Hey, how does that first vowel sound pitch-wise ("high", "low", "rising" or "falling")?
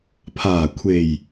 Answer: low